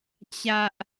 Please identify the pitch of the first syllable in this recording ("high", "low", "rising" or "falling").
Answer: high